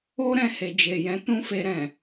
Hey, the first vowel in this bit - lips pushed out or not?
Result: yes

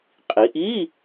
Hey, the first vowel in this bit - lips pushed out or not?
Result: no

